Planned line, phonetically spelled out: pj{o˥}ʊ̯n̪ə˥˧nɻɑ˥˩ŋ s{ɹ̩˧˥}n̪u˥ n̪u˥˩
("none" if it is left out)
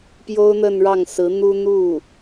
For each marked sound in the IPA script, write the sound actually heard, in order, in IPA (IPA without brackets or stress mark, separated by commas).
o˥, ɹ̩˧˥